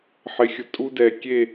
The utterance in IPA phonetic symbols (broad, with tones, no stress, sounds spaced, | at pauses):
ħ ɪ˨˦ xʲ ʊ˨ tʼ u˦ d ɛ˨ kʲ e˦˨